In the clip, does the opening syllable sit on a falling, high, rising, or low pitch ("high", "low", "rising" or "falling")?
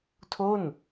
falling